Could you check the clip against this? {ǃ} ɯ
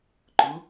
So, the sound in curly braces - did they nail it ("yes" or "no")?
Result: yes